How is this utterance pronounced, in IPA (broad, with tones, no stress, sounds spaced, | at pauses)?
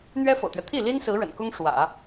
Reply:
n̪ ɥ ɛ˥ f ɤ̰˨˩ t̪ ɥ ɛ˦ t̪ʰ i˥˩ l i˥ n s ɹ̩˧˥ ɻ ə̰˨˩ n k ʊ˥ ŋ ʂ w ä̰˨˩˦